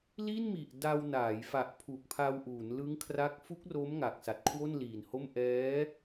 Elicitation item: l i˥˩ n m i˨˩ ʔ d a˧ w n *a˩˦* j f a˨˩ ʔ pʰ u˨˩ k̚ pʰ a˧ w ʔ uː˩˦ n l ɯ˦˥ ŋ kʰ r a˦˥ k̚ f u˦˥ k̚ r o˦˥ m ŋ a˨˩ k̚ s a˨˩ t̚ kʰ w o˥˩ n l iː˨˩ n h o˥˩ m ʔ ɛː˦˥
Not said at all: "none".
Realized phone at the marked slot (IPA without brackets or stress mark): aː˩˦